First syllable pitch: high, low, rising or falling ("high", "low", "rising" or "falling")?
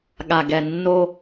low